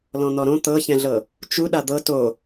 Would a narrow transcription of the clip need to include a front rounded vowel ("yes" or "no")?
no